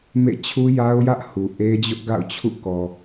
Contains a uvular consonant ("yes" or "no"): no